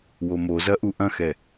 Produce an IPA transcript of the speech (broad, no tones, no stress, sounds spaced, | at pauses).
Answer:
w o m o z ɐ ʔ u ʔ ɐ̃ x ɛ